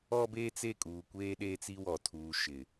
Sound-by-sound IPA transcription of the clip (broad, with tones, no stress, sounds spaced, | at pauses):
ɔ˦ b eː˦ t͡s e˦˨ kʼ uː˨ kʷ eː˦ ɗ eː˦ t͡s i˦ w ɔ˨ tʰ uː˨ ʃ ɪ˨